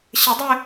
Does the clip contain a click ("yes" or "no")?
no